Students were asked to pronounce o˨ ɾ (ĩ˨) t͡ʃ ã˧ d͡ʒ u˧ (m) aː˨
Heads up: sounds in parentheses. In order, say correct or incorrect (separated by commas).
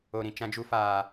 correct, incorrect